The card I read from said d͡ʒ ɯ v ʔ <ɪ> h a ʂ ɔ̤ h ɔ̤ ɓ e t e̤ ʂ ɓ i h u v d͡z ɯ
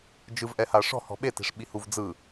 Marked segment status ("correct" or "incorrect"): incorrect